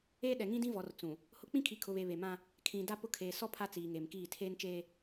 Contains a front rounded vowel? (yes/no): no